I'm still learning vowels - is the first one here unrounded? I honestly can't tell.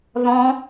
no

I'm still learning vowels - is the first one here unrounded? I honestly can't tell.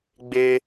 yes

